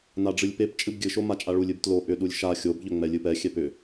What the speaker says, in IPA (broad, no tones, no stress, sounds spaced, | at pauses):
n a ɖ͡ʐ ɨ lʲ p e p t͡ʃʼ ɨ b ɡʲ ɨ ʃ o m a t͡ʃʼ a ɭ u lʲ ɨ b t l o ʔ ʏ ɗ u lʲ ʃ a xʲ o b ʎ ʏ ŋ͡m ɛ lʲ ɨ p ɛ xʲ ɛ p ʏ